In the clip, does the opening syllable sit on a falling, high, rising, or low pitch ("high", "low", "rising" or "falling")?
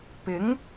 rising